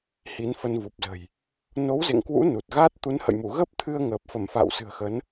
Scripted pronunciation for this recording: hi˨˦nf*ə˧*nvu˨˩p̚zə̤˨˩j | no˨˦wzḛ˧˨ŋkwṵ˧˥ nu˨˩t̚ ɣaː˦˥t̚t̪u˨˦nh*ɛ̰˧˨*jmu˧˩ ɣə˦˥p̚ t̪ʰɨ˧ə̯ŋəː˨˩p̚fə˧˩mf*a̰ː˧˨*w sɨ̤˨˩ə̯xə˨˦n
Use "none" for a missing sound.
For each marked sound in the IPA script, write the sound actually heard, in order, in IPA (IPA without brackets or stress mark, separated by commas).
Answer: ə˧, ə̰˧˨, a̰ː˧˨